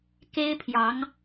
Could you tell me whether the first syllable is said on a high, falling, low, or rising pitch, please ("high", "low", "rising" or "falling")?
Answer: high